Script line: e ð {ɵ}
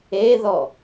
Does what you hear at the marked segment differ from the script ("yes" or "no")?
yes